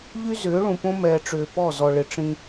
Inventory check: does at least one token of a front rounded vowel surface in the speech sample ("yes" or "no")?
yes